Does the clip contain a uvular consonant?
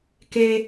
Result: no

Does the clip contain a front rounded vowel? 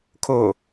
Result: no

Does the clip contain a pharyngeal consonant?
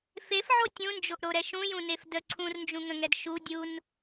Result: yes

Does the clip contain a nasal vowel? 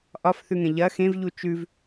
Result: yes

